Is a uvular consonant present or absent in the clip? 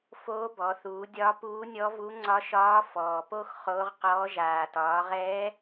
present